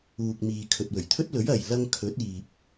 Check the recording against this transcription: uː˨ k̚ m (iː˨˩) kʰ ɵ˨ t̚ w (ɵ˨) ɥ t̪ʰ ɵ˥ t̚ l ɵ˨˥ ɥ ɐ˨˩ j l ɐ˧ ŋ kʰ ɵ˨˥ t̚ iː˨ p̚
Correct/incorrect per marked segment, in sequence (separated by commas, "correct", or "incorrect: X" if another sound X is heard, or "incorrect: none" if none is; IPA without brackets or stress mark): incorrect: iː˨, incorrect: ɵ˨˩